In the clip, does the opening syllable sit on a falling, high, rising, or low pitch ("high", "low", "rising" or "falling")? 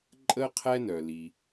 high